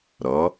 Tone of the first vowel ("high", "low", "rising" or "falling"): rising